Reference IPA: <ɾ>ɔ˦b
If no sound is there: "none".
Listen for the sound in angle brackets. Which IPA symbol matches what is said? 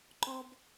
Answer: ǃ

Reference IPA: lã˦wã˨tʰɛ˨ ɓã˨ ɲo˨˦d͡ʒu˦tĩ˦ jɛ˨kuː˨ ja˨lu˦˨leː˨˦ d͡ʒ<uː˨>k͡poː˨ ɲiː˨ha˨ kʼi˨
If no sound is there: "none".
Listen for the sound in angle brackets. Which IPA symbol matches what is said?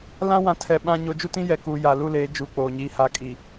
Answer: uː˨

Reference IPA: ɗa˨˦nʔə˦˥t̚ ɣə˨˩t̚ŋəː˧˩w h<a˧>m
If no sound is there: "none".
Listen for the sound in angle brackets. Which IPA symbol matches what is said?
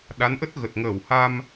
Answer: a˧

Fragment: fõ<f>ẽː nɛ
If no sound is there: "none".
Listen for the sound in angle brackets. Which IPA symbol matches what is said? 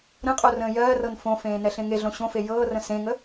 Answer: f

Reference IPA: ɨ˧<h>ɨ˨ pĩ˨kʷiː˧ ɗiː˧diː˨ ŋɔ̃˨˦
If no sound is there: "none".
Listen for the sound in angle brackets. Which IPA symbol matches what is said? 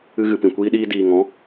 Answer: ɣ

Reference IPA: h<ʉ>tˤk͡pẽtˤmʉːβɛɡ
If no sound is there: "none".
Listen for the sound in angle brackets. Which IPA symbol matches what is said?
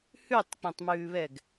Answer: ʉ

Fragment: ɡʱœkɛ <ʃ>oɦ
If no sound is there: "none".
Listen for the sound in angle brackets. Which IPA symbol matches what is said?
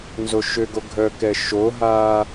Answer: ʃ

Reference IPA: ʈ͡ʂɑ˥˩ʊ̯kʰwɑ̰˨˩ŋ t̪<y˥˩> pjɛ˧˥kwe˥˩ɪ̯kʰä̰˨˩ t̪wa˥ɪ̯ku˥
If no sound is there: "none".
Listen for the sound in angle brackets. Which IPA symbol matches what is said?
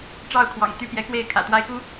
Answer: y˥˩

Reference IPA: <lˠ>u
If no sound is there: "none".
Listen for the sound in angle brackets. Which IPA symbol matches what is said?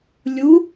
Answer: lʲ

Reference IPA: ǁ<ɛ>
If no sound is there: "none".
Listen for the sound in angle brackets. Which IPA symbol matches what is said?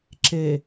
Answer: e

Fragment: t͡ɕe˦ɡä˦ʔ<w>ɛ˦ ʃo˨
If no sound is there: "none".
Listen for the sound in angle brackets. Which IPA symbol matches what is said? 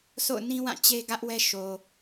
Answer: w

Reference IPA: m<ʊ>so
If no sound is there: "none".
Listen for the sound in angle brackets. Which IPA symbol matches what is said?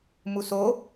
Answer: u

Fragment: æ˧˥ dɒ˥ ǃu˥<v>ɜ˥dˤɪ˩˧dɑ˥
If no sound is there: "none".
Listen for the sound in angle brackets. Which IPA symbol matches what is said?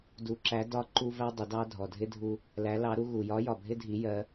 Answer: v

